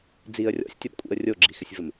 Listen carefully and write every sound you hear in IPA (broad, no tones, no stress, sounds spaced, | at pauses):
d͡z i ə̯ rʲ ɔ̰ sʲ tʲ ɔ b kʷʼ ḭ ə̯ rʲ o ɡ͡ǁ i x ɪ sʲ v ɘ m